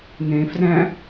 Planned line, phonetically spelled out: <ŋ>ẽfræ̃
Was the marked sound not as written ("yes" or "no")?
no